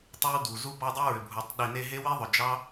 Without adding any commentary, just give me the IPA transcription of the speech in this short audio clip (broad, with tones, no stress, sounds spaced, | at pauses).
tˤ ʏ˦ w d u˨ z u˦ b ɑ˦ dˤ u˦ ɹ ʏ˨ bʱ u˨ tˤ ɗ i˨ n e˧ ɦ e˦ w i˦ ðˤ ʏ˨ d͡ʒ ɑ˦